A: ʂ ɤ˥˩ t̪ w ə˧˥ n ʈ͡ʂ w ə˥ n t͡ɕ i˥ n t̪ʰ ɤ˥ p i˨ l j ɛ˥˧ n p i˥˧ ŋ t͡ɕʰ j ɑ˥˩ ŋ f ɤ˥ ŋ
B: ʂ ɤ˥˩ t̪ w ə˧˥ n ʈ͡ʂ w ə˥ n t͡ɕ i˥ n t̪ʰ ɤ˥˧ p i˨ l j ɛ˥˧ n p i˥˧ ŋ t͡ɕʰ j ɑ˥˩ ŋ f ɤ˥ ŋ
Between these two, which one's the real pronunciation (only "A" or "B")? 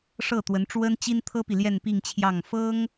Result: A